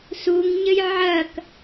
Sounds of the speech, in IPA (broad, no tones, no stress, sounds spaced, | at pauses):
s u ŋ ɲ ɘ j ʕ ɐ k